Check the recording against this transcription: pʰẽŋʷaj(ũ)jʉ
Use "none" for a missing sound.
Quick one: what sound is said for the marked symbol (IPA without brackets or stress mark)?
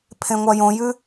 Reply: õ